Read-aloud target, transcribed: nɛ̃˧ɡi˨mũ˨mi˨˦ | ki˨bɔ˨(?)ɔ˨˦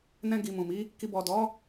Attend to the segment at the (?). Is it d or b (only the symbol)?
d